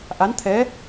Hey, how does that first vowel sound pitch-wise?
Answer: rising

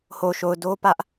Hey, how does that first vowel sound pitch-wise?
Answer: low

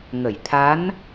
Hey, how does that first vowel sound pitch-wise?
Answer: low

